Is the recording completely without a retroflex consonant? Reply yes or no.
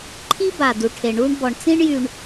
no